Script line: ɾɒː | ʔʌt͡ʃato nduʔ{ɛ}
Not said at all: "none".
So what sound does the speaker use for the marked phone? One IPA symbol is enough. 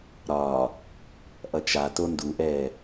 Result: ɛː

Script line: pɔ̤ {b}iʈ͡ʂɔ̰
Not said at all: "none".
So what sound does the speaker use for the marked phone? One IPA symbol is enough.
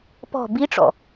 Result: b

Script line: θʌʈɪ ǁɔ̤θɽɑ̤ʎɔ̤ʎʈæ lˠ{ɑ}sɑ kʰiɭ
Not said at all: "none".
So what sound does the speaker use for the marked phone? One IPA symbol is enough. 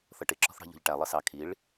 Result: ʌ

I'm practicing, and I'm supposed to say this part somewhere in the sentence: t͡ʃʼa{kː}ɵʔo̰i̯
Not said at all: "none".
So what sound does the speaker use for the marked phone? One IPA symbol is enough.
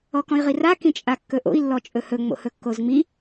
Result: kː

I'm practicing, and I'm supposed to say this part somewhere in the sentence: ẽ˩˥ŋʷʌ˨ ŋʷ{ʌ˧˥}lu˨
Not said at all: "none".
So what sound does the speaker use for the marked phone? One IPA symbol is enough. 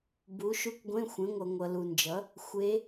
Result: ʌ˨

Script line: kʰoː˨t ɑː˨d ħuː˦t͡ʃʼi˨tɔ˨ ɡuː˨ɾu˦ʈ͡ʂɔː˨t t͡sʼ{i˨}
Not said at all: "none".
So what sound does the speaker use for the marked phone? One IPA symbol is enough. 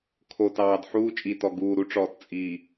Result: i˨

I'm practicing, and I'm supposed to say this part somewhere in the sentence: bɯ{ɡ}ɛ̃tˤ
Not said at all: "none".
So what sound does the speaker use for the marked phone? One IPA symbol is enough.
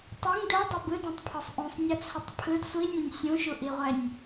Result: d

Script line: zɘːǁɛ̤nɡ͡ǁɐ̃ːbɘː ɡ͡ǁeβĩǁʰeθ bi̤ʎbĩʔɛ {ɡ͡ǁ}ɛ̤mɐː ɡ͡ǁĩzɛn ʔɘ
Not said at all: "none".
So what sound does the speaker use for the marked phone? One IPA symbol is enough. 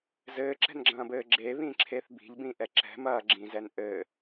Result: ǁ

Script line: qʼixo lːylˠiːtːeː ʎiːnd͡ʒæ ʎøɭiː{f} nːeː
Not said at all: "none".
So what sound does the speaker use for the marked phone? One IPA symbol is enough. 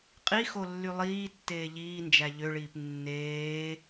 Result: p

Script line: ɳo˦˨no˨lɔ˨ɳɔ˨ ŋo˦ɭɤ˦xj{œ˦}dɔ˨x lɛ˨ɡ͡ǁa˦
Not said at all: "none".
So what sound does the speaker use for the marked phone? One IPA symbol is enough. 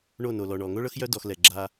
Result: œ˦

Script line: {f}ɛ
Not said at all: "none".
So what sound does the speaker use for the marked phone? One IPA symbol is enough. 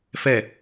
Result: f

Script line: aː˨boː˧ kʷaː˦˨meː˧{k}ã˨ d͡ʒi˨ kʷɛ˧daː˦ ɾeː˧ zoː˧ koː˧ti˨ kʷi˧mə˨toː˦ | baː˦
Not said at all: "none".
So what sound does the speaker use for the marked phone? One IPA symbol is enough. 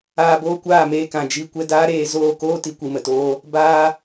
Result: k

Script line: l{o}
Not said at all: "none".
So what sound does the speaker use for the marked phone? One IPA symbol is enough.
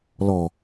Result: ɔ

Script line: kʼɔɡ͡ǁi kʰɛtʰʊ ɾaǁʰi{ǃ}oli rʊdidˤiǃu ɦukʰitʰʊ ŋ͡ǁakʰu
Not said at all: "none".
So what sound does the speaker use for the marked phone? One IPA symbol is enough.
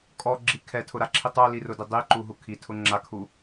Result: tˤ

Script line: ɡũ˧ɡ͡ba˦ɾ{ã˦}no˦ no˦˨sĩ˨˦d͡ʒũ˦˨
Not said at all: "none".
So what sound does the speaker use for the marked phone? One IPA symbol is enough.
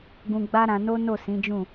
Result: ã˧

